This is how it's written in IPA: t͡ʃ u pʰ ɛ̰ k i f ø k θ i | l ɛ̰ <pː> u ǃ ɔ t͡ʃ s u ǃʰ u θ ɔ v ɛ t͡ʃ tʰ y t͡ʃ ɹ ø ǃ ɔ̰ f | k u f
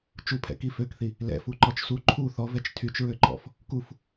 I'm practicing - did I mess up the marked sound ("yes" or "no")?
yes